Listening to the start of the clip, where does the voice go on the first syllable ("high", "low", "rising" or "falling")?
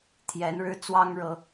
rising